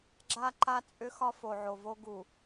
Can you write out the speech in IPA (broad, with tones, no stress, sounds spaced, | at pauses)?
ɡ͡ǁ a˦ ǃ a˦ t͡sʼ ʏ˦ x ɒ˦ f o˨ ʕ o˨ v o˦ ɡ u˨